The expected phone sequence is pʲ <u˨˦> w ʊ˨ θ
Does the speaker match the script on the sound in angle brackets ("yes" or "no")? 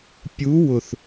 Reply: yes